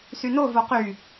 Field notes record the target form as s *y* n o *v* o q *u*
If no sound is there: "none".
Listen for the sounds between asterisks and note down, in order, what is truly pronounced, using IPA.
y, v, y

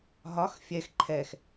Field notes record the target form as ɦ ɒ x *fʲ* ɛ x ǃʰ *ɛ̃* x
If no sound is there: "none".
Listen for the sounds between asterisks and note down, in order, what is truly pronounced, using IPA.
fʲ, ɛ

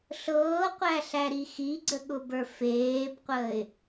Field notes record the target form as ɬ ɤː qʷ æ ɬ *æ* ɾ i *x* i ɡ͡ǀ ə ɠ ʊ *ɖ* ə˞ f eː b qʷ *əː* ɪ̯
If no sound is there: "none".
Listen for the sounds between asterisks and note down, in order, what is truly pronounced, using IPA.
æ, x, b, əː

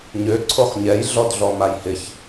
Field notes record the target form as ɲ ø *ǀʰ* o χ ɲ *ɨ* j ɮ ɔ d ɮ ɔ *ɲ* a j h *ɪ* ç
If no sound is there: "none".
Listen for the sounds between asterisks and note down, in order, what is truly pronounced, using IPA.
ǀʰ, ɛ, m, ɪ

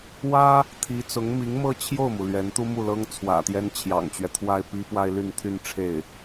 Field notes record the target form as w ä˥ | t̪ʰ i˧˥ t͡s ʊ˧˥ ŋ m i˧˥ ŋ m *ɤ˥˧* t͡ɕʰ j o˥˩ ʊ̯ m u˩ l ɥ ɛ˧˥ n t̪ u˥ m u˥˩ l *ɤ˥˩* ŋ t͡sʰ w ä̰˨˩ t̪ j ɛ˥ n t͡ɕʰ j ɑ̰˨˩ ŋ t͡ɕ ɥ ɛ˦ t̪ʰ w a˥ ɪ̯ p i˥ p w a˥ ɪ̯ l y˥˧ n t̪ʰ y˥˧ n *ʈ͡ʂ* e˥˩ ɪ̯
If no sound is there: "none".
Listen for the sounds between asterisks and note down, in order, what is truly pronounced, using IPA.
ɤ˥˧, ɤ˥, ʈ͡ʂʰ

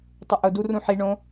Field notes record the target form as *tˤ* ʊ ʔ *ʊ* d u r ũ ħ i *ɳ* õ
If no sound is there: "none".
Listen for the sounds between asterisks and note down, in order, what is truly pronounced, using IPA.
tˤ, ʊ, ɳ

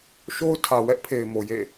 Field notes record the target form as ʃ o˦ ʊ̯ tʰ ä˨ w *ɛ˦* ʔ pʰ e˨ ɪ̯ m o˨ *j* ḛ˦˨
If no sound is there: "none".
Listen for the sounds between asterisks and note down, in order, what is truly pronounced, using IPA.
ɛ˦, j

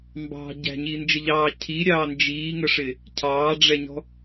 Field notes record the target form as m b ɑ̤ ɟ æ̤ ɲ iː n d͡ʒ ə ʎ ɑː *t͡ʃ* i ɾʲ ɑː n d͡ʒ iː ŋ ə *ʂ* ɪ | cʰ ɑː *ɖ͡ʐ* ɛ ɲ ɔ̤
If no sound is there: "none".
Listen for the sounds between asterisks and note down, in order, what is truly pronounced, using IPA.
cʰ, ʂ, ɖ͡ʐ

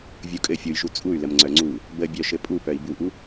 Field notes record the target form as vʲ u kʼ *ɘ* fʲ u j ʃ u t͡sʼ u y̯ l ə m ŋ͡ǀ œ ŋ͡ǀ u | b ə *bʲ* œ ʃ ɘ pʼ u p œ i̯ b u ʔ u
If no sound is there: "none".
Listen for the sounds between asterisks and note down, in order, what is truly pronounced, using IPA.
ɘ, bʲ

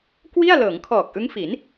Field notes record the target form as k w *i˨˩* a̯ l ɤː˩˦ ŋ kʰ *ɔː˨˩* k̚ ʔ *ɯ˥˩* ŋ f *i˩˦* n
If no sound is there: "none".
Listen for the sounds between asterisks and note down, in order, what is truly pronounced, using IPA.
i˥˩, ɔː˨˩, ɯ˦˥, i˩˦

